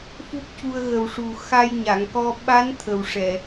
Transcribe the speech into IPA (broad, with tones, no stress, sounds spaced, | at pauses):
f u˦˥ k̚ c u˧ ə̯ ɣ ə˨˩ w ʂ u˨˩ x a˧ j ɲ a˨˩˨ ŋ k ɔ˧ ɓ a˧˥ n t̪ʰ ə˨˩ w ʂ ɛ˨˩˨